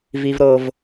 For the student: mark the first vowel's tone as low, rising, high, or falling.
high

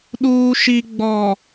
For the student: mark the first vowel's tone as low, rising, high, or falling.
low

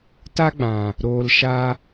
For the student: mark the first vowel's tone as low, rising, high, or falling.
high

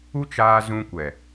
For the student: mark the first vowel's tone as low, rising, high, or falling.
high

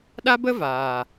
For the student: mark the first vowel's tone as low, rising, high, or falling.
high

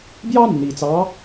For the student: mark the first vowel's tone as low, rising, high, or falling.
high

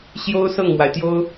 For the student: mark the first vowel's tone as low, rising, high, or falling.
high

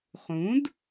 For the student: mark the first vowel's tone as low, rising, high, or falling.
rising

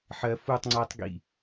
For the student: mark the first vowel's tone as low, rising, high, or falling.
low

